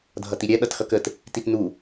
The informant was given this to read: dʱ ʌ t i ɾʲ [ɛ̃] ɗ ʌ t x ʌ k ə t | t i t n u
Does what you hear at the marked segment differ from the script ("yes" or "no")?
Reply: yes